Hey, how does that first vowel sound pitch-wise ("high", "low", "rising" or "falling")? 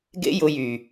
high